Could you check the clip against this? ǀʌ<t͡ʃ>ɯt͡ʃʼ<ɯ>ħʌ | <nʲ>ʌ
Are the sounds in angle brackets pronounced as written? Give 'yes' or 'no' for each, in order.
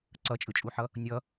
no, no, yes

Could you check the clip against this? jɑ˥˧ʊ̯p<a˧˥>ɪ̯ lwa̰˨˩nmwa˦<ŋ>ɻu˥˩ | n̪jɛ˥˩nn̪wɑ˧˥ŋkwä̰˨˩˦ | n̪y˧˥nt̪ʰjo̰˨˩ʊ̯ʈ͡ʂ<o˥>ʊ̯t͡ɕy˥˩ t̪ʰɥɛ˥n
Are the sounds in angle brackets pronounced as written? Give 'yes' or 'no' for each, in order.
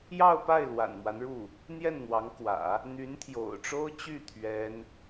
no, no, yes

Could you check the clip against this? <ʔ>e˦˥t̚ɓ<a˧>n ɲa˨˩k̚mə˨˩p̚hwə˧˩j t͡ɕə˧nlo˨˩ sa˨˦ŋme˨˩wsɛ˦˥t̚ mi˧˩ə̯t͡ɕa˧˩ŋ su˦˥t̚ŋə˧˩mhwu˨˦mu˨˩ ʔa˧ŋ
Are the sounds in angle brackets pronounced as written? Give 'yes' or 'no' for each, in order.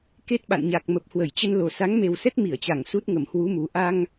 no, no

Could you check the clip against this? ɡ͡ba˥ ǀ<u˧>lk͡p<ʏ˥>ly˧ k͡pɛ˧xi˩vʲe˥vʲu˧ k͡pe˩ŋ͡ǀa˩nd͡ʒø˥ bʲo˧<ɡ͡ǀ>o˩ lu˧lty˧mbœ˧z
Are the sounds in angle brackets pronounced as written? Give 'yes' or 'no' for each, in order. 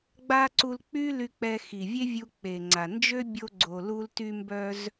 yes, no, yes

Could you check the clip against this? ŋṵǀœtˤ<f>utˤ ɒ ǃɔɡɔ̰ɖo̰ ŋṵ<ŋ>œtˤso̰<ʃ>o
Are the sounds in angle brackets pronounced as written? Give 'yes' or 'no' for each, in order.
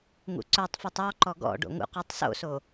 yes, no, no

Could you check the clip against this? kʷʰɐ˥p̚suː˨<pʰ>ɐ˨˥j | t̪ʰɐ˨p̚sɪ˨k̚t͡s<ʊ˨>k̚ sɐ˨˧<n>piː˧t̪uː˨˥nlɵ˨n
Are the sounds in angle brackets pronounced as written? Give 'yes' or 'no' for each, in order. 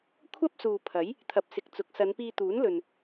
yes, no, yes

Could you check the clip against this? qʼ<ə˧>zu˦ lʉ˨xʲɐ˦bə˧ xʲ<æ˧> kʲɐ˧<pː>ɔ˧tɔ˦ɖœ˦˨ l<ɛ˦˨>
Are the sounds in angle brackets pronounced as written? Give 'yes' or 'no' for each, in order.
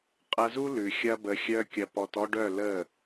no, no, no, no

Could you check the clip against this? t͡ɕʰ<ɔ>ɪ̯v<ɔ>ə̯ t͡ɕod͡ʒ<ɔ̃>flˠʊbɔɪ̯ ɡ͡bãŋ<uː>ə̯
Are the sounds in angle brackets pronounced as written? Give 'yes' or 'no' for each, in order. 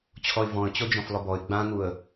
yes, no, yes, no

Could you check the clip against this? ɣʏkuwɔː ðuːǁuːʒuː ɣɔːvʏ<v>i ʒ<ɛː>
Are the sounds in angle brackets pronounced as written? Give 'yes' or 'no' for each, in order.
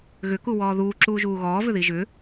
no, no

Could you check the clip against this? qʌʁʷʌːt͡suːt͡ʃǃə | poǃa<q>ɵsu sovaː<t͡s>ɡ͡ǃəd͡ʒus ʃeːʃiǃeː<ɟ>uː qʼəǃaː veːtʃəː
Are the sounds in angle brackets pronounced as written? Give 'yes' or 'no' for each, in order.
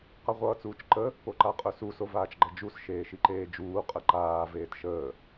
no, no, no

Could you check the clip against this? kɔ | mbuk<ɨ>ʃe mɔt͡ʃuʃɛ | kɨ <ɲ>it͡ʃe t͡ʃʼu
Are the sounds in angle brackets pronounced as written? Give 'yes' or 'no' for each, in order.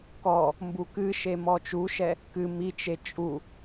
yes, no

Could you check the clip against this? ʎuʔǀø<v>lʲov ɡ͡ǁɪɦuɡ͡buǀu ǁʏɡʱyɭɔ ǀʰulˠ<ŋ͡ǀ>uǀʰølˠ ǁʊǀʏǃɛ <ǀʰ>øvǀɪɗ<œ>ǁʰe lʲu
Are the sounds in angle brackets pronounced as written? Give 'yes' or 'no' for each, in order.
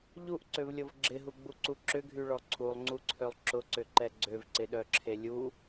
yes, yes, no, yes

